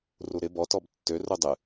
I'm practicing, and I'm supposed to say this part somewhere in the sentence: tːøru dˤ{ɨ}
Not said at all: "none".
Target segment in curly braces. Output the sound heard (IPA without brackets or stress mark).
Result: ɨ